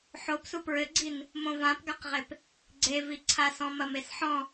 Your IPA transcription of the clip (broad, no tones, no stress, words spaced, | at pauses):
ħobsu pɹɘɡ͡ǀin | mõvãpɡaqʁep | ɡ͡ǀeviǀʰasɔ̃ mɐmesħɔ̃